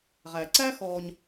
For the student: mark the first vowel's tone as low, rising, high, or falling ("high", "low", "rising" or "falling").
low